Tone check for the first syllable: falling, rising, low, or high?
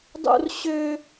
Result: high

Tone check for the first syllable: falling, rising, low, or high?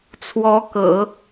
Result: rising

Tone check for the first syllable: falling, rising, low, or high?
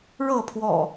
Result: falling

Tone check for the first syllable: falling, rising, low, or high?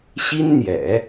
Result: high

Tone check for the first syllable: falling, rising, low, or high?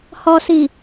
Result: low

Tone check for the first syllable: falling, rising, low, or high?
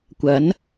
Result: rising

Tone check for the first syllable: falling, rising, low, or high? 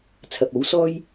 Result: low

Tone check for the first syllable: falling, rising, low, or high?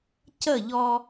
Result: falling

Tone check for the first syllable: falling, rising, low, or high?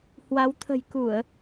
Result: rising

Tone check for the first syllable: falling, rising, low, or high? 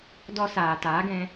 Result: high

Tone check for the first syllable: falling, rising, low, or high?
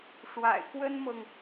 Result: low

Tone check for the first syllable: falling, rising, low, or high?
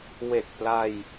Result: low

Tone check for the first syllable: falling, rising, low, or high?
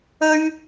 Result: high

